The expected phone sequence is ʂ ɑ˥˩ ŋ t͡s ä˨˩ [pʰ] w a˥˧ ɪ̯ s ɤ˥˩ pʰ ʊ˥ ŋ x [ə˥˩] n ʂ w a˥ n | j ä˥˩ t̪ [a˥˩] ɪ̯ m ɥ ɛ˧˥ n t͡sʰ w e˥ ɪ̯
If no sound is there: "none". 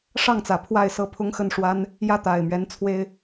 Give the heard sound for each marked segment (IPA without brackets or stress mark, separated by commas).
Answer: pʰ, ə˥˩, a˨˩